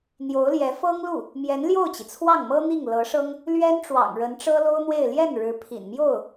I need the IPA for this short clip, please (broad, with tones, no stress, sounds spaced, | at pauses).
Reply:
n̪ j o˧˥ ʊ̯ l j ɛ˧˥ f ɤ˥ ŋ l u˥˩ | m j ɛ˧˥ n l j o˥˩ ʊ̯ t͡ɕ i˩ t͡sʰ w ɑ˥˩ ŋ m ɤ˥ n̪ i˥˩ ŋ l ɤ˧˥ ʂ ɤ˥ ŋ | l ɥ ɛ˥ n ʈ͡ʂ w ɑ̰˨˩ ŋ ɻ ə˧˥ n ʈ͡ʂ ɤ˥ l o˥ ʊ̯ n̪ w e˥˧ ɪ̯ l j ɛ˥˩ n ɻ ɻ̩˧˥ pʰ ḭ˨˩ n m j o˥˩ ʊ̯